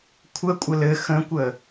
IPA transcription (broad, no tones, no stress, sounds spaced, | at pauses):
kʷʰ ə kʷʼ ə l ɘ x ə̃ kʷ ə